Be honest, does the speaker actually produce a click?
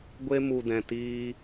no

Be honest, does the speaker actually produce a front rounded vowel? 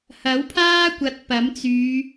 yes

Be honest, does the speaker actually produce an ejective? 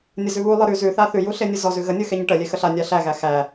no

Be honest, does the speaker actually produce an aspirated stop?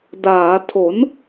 yes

